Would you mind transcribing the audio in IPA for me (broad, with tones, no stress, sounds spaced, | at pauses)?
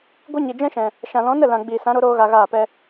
ɡʷ ɨ˦ ɲ i˨ d͡ʒ ɛ̃˦ ʃ ɛ̃˨ | ʃ ã˨ l ɔ̃˨˦ n ə˦˨ l ã˨ ɡ͡b iː˨ s ã˨˦ ɾ o˨˦ ɾ oː˦ ɣ a˧ ɣ aː˦˨ p ɛ˦